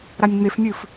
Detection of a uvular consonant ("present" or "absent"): absent